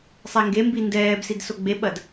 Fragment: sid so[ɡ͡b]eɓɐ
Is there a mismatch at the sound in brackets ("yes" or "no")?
no